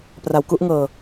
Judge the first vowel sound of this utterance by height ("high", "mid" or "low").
low